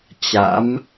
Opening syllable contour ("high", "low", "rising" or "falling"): rising